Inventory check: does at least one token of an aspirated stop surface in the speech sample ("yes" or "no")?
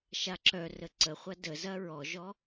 no